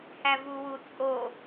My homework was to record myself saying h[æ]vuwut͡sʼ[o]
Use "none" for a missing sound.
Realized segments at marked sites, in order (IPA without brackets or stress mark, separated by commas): æ, o